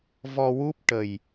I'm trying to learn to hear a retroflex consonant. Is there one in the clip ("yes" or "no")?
yes